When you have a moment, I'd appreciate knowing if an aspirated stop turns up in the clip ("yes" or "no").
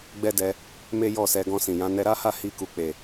no